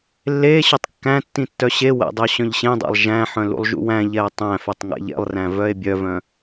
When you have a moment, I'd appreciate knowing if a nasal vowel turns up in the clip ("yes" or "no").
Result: yes